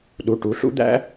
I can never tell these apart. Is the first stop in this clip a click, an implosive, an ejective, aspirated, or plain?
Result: implosive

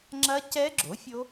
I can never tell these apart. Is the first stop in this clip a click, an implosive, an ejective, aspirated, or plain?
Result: click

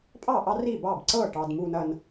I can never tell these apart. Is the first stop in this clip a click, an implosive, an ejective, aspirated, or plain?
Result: ejective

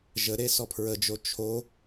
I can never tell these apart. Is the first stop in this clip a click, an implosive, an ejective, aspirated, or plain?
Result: aspirated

